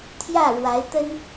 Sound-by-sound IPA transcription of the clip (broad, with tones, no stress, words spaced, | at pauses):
t̪ʰjä˥˩ɻwa˧˥ɪ̯ t̪ə˥n